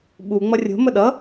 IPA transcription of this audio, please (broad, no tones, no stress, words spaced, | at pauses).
ɓu ŋ͡mʌrʲo̤ məɗʌ